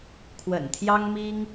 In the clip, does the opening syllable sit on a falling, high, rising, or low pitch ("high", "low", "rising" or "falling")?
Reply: low